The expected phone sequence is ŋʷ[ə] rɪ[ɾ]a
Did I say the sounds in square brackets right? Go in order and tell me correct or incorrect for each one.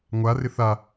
incorrect, incorrect

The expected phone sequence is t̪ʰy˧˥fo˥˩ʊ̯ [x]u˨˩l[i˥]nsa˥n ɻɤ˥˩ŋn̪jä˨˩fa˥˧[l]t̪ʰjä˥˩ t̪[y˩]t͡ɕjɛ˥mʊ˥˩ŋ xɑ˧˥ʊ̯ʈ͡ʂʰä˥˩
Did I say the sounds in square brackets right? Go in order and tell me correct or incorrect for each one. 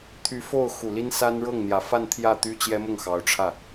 correct, correct, incorrect, incorrect

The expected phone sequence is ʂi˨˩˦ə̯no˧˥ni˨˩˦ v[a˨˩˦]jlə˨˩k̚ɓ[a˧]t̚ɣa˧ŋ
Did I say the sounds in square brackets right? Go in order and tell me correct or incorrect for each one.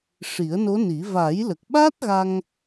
correct, incorrect

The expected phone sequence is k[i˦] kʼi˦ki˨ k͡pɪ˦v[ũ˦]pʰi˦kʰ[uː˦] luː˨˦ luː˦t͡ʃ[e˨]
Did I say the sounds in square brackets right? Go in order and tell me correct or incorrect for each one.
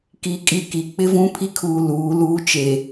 incorrect, correct, incorrect, correct

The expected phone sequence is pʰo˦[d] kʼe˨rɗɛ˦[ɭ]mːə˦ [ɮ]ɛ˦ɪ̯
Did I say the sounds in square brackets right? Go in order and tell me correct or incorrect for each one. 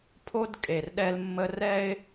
correct, incorrect, incorrect

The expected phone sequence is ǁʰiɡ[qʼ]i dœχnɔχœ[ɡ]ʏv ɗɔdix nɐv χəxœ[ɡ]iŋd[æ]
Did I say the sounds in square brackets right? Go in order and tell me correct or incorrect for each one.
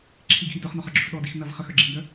incorrect, incorrect, incorrect, incorrect

